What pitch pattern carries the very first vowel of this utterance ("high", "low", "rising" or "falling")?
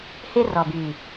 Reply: high